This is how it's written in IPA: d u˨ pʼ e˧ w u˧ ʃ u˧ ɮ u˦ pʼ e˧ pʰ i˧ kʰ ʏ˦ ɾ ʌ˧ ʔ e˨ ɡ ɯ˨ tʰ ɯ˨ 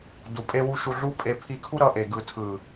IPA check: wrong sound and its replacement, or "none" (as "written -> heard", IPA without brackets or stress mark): ʏ˦ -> u˦